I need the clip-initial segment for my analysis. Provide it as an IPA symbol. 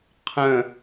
qʰ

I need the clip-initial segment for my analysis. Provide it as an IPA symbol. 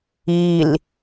i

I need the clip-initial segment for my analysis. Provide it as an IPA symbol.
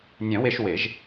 nʲ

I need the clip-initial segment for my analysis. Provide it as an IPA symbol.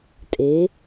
tʼ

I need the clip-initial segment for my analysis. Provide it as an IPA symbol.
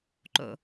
ǃ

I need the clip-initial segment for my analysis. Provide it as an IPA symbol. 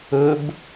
ɵ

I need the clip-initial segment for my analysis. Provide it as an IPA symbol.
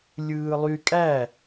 lʲ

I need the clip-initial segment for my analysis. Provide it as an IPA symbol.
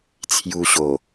t͡sʰ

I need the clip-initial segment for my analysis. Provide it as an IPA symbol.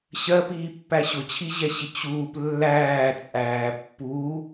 ɕ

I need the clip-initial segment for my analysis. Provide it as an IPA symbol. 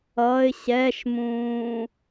ʌ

